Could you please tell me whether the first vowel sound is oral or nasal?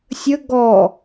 oral